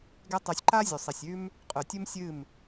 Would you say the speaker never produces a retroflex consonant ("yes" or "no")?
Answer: yes